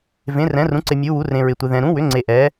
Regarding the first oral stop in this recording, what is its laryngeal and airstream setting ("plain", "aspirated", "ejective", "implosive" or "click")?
click